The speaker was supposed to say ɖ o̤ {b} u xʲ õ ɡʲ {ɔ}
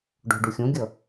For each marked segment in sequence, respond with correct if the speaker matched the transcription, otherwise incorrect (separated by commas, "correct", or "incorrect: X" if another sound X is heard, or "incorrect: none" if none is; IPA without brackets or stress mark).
incorrect: ɖ, incorrect: ʌ